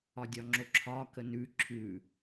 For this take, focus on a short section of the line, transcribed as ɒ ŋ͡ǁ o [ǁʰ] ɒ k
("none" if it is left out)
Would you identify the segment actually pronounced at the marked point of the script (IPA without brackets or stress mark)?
ǁʰ